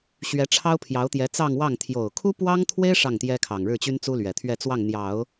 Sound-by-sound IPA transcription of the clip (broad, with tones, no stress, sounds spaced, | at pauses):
ɕ ɥ ɛ˧˥ ʈ͡ʂʰ ɑ˥ ʊ̯ pʰ j ɑ˧˥ ʊ̯ t̪ j ɛ˧˥ t͡s ɑ˥˧ ŋ w ɑ˥˩ ŋ t̪ʰ j o˨˩ ʊ̯ kʰ u˥ p w ɑ˥ ŋ t̪ʰ w e˥ ɪ̯ ʂ ɑ˥˩ ŋ t̪ j ɛ˥ kʰ ɑ˨˩ ŋ ɻ ɻ̩˥˩ t͡ɕ y˥ n t͡s u˥ l ɥ ɛ˨˩ t̪ʰ ɥ ɛ˥˧ t͡s w ɑ˥˩ ŋ n̪ j ɑ˨˩˦ ʊ̯